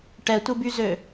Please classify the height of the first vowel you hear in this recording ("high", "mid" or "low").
mid